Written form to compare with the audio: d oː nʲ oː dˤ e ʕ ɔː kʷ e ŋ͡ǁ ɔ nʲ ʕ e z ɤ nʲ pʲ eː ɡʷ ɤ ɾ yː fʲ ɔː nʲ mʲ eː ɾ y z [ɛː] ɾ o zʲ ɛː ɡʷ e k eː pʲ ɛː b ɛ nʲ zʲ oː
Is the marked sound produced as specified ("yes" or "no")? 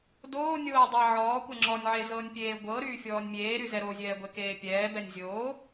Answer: no